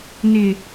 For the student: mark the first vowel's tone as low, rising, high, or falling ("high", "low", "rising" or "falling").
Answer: low